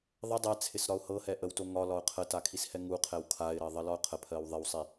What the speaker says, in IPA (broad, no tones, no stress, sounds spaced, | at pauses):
ðˤ ə dˤ ɛ t͡sʰ ɪ s ɾ ɒ ʊ̯ h ɤ h ɛ ʔ ə w t o ŋ ɒ l ɒ ʊ̯ qʰ ə t a kʰ i s h ɛ ŋ u qʰ ɛ w kʰ a ɪ̯ ɾ ɜ ðˤ ɜ l ɒ ʊ̯ qʰ ə pʰ ɜ w ðˤ ɪ w sˤ i